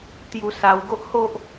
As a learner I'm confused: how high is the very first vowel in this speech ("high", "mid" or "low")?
high